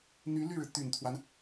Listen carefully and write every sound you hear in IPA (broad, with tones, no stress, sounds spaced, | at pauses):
n̪ y˧˥ l y˥˩ ɻ ɻ̩˩ t̪ y˨˩ n t̪ʰ w a˦ n